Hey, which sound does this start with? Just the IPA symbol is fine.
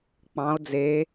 k͡p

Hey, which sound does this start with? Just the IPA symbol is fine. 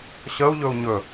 ɕ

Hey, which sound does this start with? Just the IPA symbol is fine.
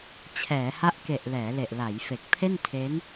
t͡ɕʰ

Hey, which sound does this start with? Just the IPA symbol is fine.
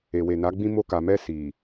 e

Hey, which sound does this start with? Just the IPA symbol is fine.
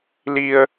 l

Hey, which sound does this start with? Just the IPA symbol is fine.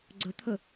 ɡ͡ǀ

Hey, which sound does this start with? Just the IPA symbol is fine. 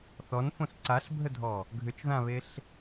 θ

